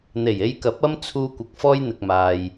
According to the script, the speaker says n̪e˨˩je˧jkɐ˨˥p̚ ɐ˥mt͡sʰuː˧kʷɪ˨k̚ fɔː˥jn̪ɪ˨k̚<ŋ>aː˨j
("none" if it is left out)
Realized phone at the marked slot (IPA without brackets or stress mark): m